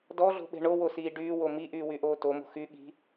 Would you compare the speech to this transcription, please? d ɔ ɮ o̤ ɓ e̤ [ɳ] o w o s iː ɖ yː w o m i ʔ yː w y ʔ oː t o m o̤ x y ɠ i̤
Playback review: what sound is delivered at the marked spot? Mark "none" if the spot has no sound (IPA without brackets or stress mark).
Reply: ɳ